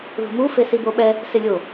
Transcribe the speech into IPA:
ð ṳ m u f e s i b o ɓ ɛ | s ɪ lʲ o

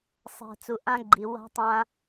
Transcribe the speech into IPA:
sˤ ɛ̤˨ t͡s u˨ ʔ ã˦ ɡ͡ǃ i˨ w a̤˦ tˤ ã˦

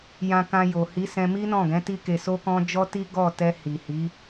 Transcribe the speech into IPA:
j ã˧ k ã˧ j o˨ h i˨˦ s ɛ̃˧ m i˦ n ɔ̃˦˨ ɡ ɛ̃˨˦ t i˦ k e˧ s o˦ k ɔ̃˦ d͡ʒ ɔ˦ t i˦ ɡ ɔ˦˨ t ɛ˧ h i˨ h i˨˦

